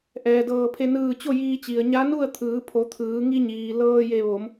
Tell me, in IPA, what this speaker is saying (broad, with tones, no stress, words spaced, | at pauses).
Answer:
ʔɛː˩ dɤː˧˩pʰe˧ nɯː˧˩ t͡ɕo˥˨jiː˧t͡ɕi˩ə̯ ɲa˧˥nu˥˨ə̯t̪ʰɯː˩˧pʰo˩˧ t̪ʰɯː˩˧ ŋi˧ɲiː˩ lɤː˧je˧˩ ʋo˩˧m